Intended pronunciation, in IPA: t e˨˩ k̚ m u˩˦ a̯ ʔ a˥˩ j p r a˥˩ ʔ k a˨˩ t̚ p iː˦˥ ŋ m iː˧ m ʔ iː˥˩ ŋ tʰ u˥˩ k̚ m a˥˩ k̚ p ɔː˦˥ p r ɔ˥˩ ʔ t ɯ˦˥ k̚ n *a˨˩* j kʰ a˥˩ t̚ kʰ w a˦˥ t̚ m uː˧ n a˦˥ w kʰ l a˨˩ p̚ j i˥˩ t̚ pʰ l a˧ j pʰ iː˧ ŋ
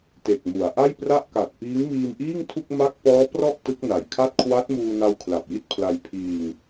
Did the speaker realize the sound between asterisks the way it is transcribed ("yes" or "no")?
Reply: yes